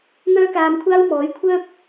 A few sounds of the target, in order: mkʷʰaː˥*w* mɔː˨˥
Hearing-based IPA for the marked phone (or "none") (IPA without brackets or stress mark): w